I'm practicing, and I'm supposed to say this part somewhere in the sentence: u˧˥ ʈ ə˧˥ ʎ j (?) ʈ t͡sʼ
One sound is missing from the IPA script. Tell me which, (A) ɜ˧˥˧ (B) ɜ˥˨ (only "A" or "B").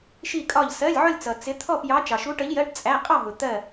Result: A